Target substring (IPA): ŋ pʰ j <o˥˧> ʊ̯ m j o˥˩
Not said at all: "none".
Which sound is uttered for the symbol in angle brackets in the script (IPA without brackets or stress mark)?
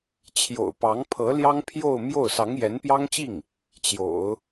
o˥˧